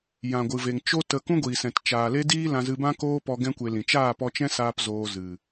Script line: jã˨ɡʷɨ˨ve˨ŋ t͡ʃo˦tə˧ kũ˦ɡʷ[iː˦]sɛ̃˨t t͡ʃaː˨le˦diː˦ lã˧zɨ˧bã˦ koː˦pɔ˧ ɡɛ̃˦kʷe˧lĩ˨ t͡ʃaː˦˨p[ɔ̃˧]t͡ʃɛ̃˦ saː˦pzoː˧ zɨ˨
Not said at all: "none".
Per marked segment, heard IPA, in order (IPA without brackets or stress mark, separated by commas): iː˨, ɔ˧